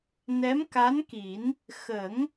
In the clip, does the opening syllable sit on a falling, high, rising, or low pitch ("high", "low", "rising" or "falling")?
rising